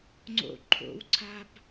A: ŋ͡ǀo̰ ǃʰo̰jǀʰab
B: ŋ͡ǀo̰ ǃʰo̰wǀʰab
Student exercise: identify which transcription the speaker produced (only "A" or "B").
B